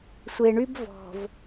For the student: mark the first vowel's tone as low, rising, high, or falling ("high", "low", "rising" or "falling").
low